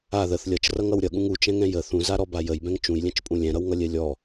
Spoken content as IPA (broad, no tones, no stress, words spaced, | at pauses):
a ðəθ lʲʌt͡ʃrʌŋʌw ɾʲʌɠũŋ ut͡ʃɛ̃ŋɛ̃ jə θũzaɾɔba jəjbɛ̃ŋ t͡ʃũjlʲɛ̃t͡ʃpʼũ lʲɛ̃ɾʌwŋʌlʲɛ lʲɔ